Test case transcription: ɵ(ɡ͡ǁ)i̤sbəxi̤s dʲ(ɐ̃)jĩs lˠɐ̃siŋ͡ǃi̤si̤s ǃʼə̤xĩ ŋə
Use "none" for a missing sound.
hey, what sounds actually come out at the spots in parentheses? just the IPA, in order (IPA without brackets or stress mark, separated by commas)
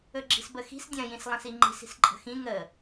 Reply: ɡ͡ǁ, ɐ̃